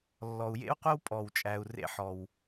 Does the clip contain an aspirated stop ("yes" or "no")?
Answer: no